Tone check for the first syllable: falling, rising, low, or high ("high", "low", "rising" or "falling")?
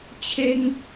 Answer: high